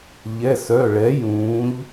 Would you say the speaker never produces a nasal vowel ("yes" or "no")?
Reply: no